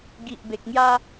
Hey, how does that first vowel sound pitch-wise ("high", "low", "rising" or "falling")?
low